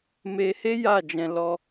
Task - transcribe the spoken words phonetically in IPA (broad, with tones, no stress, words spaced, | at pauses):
me˧he˦ ja˦˨d͡ʒɛ̃˧ lɔ˧